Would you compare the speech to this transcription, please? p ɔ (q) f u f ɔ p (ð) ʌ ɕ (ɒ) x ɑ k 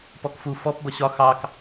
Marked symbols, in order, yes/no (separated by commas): no, no, yes